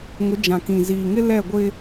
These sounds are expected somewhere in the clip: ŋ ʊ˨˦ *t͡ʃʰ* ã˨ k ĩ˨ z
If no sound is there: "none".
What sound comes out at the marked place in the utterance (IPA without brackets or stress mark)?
d͡ʒ